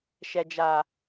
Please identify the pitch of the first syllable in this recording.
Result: low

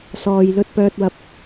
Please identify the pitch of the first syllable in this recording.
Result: low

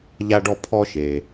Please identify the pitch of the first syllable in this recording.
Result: high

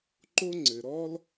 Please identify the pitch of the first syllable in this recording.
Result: high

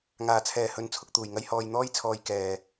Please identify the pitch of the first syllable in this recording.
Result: low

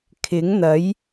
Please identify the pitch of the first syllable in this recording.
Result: rising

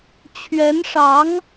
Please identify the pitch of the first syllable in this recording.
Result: rising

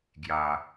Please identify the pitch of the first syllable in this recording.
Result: low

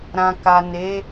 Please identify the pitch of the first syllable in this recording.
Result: low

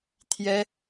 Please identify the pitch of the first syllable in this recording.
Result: high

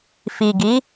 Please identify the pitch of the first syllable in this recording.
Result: low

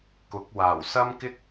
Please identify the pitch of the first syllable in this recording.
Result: rising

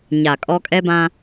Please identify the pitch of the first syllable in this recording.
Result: low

